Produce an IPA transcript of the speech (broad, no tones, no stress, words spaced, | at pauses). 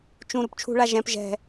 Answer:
t͡ʃũ ɾupt͡ʃʰṳɭa ʒɛ̃p ʒɛ̤